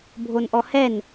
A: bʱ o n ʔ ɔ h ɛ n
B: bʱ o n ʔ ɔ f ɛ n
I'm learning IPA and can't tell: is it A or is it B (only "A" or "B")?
A